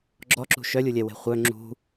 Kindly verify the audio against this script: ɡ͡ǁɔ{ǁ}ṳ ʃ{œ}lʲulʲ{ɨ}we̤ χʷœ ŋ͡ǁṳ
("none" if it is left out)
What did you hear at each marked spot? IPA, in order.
ǁ, œ, ɛ

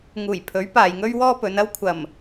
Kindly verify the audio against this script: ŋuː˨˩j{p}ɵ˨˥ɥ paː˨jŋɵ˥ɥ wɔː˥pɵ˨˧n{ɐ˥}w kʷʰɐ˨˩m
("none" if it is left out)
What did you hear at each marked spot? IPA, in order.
pʰ, ɐ˥

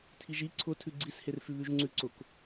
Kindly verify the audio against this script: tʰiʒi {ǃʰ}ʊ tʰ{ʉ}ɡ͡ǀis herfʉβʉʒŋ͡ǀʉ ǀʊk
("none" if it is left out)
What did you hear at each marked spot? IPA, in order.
ǀʰ, ʉ

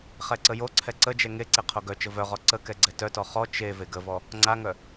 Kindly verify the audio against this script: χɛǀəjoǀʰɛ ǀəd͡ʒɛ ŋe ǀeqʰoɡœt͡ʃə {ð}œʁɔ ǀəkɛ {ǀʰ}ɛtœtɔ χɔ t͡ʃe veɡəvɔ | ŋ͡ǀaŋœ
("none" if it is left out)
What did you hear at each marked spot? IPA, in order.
v, ɡ͡ǀ

